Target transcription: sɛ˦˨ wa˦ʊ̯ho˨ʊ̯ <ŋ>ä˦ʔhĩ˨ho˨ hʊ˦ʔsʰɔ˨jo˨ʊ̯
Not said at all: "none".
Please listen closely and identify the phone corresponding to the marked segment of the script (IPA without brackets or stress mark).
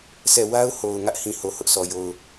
ŋ